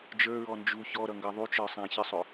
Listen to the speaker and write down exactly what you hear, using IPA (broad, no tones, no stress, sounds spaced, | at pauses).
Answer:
d͡ʒ ə˞ ɹ ɔ n d͡ʒ u ç ɔ ɾ ʌ ŋ ɡ ʌ ðˤ u t͡ʃ ə˞ sˤ æ̃ ç ɪ sˤ ʊ